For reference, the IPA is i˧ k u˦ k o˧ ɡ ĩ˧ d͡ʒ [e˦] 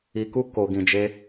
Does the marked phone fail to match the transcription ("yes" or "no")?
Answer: no